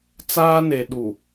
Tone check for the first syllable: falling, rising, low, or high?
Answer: high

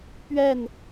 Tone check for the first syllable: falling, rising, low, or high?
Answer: falling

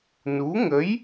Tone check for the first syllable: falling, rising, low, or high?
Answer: rising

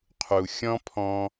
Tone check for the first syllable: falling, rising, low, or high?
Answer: low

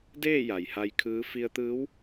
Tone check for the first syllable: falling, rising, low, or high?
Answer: falling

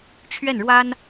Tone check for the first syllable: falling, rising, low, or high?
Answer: falling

